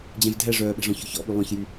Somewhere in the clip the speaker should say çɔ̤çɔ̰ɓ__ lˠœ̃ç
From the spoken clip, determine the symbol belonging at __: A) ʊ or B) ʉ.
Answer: B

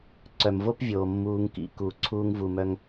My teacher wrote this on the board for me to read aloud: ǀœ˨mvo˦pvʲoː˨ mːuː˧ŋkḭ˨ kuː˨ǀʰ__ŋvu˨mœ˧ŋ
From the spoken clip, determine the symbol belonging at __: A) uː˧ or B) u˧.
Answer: A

